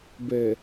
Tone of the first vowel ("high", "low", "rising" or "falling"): low